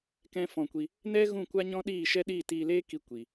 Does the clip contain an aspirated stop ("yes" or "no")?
no